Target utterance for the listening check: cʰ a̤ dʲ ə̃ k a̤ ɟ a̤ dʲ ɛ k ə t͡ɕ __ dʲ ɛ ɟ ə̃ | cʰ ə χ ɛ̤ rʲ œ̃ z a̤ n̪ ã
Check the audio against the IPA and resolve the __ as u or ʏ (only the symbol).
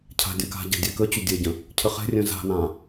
ʏ